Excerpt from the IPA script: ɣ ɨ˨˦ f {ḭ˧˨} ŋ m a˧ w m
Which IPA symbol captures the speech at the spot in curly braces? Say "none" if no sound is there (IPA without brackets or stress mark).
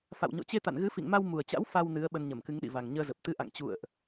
ḭ˧˨